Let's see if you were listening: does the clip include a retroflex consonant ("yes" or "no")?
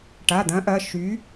yes